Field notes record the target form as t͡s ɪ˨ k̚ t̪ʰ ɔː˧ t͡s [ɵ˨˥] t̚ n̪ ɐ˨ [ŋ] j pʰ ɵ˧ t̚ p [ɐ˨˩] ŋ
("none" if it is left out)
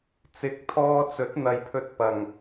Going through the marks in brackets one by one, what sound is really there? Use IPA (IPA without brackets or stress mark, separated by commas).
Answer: ɵ˨˥, none, ɐ˨˩